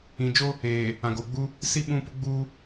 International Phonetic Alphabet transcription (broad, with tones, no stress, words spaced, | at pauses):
ĩ˨d͡ʒo˦ | eː˨ | ã˨ɡoː˨ɡ͡bu˦ | si˦ ɓũ˦pʊ˦ɡ͡buː˦